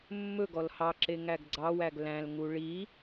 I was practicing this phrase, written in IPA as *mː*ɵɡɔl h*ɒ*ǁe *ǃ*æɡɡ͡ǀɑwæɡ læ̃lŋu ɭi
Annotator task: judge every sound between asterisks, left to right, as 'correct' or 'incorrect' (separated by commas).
correct, incorrect, incorrect